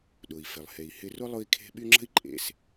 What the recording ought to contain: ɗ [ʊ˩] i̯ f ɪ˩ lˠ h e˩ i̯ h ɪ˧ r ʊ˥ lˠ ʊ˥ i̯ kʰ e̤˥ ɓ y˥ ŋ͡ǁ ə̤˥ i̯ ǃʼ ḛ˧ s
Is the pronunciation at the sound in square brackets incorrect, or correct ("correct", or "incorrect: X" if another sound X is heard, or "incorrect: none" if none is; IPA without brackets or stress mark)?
correct